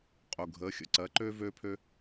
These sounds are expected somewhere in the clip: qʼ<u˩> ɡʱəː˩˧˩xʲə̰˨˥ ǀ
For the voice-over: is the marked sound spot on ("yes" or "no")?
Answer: yes